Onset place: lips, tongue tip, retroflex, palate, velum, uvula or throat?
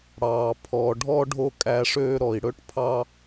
retroflex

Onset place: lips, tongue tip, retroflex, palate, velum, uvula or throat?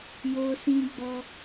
palate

